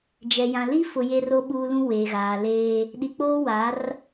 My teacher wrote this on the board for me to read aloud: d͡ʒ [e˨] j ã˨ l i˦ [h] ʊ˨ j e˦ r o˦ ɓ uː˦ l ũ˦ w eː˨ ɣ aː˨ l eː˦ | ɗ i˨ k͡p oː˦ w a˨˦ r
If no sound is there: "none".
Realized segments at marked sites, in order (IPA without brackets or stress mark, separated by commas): ɛ˨, f